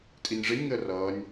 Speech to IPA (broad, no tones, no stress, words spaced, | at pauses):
tʼinʲʐɪnʲ ŋəːrʌːnʲ